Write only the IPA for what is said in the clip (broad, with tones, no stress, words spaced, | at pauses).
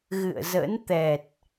ɣɨ̰˧˨ə̯zə̰˧˥n t̪ɛ˨˩t̚